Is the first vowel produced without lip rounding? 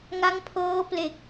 yes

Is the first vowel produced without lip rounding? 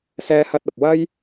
yes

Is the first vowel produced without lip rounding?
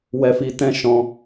yes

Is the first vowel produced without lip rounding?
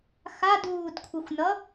yes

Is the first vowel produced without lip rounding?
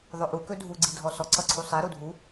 no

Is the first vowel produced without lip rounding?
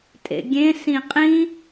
yes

